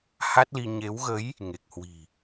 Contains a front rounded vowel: no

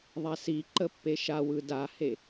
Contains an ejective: no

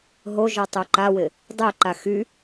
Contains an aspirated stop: no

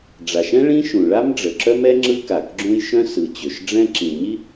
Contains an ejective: no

